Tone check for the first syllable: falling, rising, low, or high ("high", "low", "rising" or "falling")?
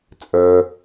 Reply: low